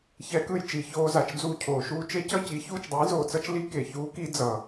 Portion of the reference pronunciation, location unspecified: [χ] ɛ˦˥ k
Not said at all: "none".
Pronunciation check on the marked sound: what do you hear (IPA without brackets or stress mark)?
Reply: ç